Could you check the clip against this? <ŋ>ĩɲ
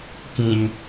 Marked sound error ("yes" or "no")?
yes